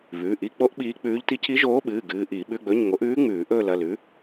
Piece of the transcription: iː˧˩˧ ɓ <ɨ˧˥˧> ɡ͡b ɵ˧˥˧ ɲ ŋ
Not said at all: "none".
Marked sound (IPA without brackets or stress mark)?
ʉ˧˥˧